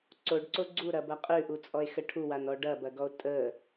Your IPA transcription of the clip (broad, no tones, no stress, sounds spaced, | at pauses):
ǀ o ɖ ǀ o ɡ͡ǀ u ɾ ɐ b ɐ qʼ ʉ ʔ u t͡sʼ ɔ e̯ x ə ʈʰ u w a n ɔ ɖ ɐ b ɐ ɡ ɔ o̯ tʼ ə